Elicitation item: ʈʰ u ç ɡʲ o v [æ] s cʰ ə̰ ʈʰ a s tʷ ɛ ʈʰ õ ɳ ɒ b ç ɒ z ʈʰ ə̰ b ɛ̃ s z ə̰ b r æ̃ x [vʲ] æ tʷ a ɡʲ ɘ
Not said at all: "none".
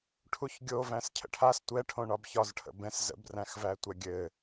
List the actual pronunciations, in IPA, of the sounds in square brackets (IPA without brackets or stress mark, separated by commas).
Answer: æ̃, v